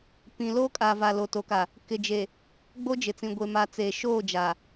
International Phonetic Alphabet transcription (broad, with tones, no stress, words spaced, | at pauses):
pĩ˨ loː˦kʼa˨ va˨lo˨to˨ka˨ | kɪ˨d͡ʒe˨ | ɡ͡bo˦d͡ʒɪ˨t͡sĩ˨ ɡʷe˨ma˨ t͡se˨ʃoː˦˨ d͡ʒa˨